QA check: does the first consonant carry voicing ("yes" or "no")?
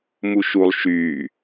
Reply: yes